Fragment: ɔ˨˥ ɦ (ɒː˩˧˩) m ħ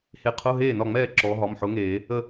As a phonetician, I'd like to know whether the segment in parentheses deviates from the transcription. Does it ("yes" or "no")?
yes